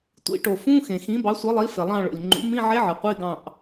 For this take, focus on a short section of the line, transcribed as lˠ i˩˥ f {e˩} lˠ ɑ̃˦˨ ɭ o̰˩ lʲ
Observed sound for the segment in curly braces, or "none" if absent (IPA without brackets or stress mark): e˩